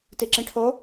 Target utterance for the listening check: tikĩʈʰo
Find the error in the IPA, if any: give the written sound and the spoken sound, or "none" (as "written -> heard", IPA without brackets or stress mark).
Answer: k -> ǁ